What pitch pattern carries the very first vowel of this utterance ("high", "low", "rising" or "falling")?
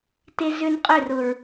high